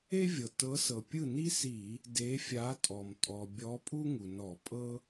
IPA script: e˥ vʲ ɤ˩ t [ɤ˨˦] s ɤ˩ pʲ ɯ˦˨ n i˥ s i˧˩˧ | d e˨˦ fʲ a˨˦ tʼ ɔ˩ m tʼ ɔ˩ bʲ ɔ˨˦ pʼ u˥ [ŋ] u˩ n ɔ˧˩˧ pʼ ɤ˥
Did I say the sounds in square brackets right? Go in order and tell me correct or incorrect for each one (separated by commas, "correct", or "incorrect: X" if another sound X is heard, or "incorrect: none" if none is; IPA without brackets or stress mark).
correct, correct